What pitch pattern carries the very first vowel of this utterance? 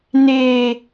high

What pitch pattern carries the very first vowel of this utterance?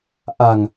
low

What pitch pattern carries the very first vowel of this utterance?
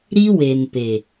high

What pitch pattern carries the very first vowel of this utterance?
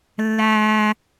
high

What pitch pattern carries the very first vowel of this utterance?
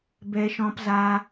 high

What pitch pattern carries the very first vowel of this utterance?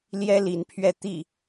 high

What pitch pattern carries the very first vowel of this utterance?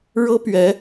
high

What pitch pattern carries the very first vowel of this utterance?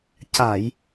low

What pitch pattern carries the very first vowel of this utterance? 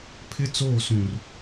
high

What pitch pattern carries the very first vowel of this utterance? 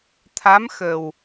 rising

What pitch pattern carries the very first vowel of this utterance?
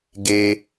high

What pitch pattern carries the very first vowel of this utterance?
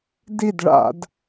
falling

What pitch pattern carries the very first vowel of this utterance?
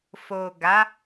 low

